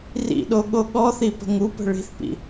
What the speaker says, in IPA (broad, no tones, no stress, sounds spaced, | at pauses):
r ḭ ɗ o ɠ o ɠ ɔ θ i p ə̤ ŋ u p ə̤ ɭ i̤ θ p ḭ